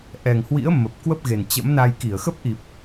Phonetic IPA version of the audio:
ʔ ɛ˨˩ ŋ h w ḭ˧˥ ə̯ m ə˨˩ p̚ k w ə˦˥ p̚ ɣ e˨˩ n t͡ɕ ə̰˧˥ m n a˧ j k i˧˩ ə̯ x ə˦˥ p̚ ʔ i˨˩ p̚

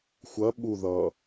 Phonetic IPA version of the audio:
xʷ ɐ ɓ u ð ʌ

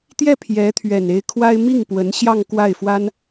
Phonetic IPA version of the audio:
t̪ j ɛ˥˩ pʰ j ɛ˧˥ t̪ʰ ɥ ɛ˨˩ n e˧˥ ɪ̯ kʰ w a˥ ɪ̯ m i˥˩ ŋ p w ə˧˥ n ɕ j ɑ˥˧ ŋ k w a˥˩ ɪ̯ f w a˥ n

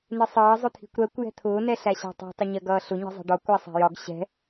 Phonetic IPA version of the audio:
n ɪ sˤ ʌː zˤ ʊ t̪ʰ i̤ kʷ ɾ ɜ kʷ j ɛ̤ t̪ʰ ʊː n ɛ ɬ æ ɕ æ̤ tˤ i̤ tˤ ɪ ɲ ɜ ɡ ʌː ɬ ʊ ɲ i̤ zˤ ɛ̤ ɖ ɒ kʷ æ sˤ æ̤ j ɒ ɡ ɕ ɛ̤

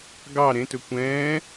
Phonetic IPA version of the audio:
ɡ ɑ ɾ ẽ t ɵ kʷ ɛ̃ː

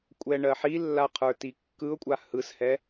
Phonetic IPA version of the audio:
kʷʼ ɛ ɳ ɜ ħ i lː a qʰ ə˞ t i kː ɯ ʊ̯ kʷʼ a h ɯ s h ɛ

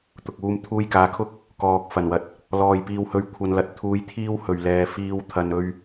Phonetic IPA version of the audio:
t̪ ʊ˨ k̚ uː˧ m t̪ʰ uː˧ j k aː˨ kʰ ʊ˥ k̚ | k ɔː˨ k̚ f ɐ˨˩ n w ɐ˧ t̚ | l ɔː˨ j p iː˧ w h ɵ˧ ɥ kʷʰ ɐ˧ n l ɐ˨ t̚ t̪ʰ uː˧ j t̪ʰ iː˥ w h ɵ˨˩ ɥ l ɛː˨ f iː˧ w t̪ʰ ɐ˨ n ɵ˧ ɥ

